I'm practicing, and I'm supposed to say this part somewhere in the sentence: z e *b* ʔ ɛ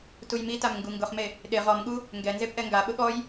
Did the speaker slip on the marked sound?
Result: yes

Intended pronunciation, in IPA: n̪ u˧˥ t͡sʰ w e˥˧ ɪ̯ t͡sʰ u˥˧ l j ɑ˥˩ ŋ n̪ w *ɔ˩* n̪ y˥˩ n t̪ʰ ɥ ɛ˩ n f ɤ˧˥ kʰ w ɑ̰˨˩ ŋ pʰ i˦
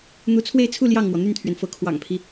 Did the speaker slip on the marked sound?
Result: no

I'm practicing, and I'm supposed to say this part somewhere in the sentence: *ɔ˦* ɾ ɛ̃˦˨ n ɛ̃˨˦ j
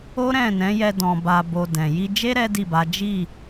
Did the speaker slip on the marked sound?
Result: yes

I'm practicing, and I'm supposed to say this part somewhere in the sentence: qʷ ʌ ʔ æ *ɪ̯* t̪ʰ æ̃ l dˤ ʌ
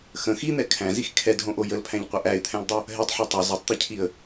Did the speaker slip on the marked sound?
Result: no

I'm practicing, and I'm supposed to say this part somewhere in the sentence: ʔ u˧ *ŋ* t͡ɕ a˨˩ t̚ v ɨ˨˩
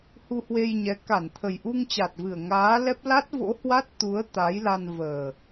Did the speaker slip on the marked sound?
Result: no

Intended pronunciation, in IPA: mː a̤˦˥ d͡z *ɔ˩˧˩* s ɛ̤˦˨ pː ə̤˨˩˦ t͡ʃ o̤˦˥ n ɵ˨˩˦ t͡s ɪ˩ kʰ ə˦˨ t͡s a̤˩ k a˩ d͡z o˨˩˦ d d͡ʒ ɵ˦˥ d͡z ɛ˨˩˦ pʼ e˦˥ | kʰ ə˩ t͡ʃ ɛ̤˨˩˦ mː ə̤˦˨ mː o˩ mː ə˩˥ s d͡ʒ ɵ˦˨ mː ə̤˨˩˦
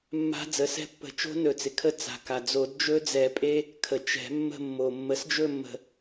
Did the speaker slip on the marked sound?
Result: yes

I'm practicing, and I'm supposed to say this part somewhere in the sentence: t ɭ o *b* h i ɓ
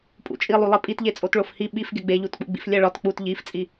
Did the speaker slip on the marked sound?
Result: yes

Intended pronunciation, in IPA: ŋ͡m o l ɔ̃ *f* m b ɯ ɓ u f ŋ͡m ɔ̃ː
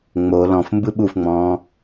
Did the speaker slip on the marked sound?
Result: no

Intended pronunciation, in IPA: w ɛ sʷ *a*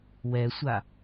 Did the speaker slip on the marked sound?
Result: no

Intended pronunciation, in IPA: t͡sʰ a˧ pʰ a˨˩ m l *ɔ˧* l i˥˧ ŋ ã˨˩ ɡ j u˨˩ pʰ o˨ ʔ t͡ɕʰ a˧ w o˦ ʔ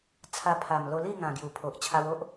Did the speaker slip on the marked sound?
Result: yes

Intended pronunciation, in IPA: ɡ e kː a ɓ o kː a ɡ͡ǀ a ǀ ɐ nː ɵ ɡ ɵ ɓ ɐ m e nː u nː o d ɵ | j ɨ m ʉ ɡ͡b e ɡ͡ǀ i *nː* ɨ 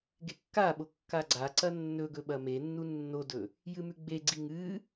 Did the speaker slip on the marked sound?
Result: yes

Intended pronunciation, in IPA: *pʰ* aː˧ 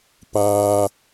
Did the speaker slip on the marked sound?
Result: yes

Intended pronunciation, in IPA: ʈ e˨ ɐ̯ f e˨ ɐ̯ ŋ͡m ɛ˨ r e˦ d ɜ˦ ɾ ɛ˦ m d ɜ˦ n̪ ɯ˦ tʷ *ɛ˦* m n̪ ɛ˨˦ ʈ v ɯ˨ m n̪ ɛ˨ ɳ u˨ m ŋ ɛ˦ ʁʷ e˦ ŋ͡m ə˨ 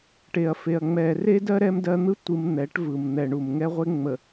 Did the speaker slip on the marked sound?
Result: yes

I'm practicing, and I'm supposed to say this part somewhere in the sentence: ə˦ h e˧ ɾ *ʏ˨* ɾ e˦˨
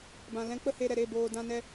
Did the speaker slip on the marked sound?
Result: yes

